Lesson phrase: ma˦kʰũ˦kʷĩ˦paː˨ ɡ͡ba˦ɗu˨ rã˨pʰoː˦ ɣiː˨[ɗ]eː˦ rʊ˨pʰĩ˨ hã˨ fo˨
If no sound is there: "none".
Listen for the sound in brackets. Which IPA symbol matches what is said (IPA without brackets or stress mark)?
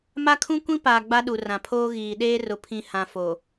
ɗ